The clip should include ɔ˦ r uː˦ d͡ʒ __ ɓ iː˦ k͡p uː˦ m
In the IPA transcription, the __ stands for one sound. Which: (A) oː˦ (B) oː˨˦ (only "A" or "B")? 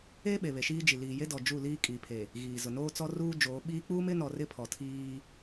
B